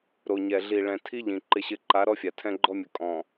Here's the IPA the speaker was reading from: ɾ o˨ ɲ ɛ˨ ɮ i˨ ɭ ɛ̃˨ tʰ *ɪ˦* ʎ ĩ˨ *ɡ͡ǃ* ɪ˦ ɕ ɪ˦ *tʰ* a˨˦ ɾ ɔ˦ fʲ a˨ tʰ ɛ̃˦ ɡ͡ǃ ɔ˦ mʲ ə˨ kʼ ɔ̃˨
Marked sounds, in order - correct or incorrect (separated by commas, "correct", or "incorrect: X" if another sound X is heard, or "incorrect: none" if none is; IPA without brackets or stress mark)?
incorrect: i˦, incorrect: ǃ, incorrect: ǃ